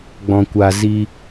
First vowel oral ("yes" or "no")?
no